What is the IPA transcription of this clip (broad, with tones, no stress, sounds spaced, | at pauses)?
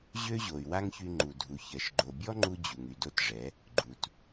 ʑ ø˦ ʑ o˨ y̯ w a˦ ŋ ç y˧ ŋ͡ǃ u˨ dʱ u˨ ç ɜ˨ ʃ ɡ͡ǃ o˨ bʲ ɔ˦ ŋ͡ǃ u˧ d͡ʑ u˨ ŋ y˨ d o˦ t ʐ ɛ˨˦ | ɡ͡ǃ u˧ t